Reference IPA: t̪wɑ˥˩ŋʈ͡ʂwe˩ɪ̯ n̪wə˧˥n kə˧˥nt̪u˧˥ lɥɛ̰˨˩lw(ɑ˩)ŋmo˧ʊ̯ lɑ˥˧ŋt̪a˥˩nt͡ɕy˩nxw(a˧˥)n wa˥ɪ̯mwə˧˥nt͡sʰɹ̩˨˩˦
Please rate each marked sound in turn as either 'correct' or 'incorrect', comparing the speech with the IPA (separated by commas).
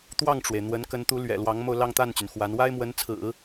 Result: incorrect, correct